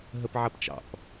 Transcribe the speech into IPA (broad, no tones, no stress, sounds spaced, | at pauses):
ɦ ə p ʕ ɐ p t͡ʃ ɑ̰ p